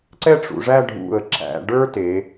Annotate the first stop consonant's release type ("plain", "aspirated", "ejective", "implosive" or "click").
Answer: click